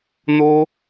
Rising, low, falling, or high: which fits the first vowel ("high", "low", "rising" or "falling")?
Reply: high